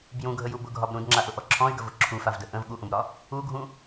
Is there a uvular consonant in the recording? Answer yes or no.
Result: no